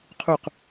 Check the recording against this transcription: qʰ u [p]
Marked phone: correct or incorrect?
incorrect